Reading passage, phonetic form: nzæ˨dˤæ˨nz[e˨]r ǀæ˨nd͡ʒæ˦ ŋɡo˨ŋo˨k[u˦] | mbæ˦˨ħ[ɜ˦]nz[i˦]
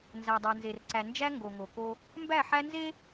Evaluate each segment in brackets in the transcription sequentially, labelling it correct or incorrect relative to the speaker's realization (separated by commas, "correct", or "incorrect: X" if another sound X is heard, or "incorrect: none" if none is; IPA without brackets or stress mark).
correct, incorrect: o˦, incorrect: æ˦, incorrect: e˦